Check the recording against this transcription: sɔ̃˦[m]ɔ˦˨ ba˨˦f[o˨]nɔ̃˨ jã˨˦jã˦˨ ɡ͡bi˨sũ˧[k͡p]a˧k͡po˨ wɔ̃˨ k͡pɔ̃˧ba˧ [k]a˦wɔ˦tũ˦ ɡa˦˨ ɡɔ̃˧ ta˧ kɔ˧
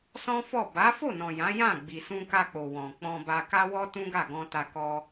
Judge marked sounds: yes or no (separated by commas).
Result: no, no, no, yes